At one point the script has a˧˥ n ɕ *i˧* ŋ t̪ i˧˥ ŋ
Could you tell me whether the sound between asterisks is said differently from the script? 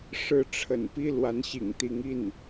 yes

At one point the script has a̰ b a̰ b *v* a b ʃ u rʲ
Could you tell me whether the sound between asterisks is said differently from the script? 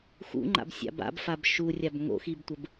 yes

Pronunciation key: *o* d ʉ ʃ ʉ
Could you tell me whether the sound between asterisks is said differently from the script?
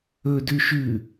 yes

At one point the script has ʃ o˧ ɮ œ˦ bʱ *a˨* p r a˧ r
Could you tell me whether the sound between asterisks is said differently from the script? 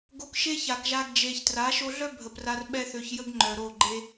yes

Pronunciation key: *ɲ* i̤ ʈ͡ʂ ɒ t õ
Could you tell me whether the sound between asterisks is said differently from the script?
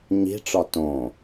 no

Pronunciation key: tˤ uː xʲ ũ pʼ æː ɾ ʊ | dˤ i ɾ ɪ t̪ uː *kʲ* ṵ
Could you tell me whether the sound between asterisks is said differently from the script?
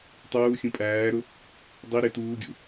yes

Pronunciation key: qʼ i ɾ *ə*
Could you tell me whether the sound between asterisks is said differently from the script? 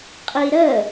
no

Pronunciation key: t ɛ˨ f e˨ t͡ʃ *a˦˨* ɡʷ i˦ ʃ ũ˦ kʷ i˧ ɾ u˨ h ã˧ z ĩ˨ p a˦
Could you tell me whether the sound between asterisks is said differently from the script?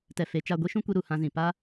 no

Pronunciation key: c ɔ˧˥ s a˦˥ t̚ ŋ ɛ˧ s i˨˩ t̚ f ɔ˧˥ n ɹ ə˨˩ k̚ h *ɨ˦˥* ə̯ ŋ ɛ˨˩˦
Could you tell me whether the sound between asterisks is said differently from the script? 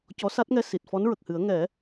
yes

